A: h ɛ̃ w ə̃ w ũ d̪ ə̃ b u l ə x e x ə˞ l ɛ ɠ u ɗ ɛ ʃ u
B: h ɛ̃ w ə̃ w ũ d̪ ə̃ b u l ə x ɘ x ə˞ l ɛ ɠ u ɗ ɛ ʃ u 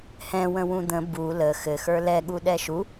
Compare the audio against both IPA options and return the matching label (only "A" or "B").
B